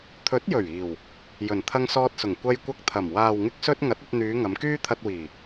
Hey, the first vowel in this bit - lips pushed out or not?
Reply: yes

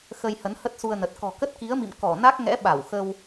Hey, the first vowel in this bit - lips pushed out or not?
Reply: no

